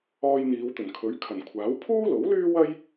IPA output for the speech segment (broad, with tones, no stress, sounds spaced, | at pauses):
ɔː˧ j n̪ iː˨˧ w t̪ ɵ˨˩ n kʰ ɵ˨˥ ɥ kʰ ɐ˨˩ n kʷʰ aː˨˥ w pʰ uː˥ l o˨˥ w l yː˥ w ɐ˥ j